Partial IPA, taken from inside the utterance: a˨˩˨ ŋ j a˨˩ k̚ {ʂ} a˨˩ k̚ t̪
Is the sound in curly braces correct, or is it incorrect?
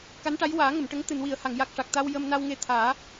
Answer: correct